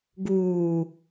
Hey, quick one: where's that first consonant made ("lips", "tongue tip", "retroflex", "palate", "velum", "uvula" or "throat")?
velum